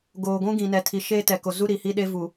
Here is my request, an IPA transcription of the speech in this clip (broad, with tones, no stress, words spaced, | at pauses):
ɡoː˨ɡʷũ˦ ɡĩ˨nɛ˨tʰi˨ ʃeː˦tɛ˨ko˨zu˦ ɾi˨hi˦ɗe˦ vu˨